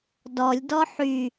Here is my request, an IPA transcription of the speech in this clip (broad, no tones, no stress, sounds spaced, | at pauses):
d ɔ lʲ d ɔ ħ y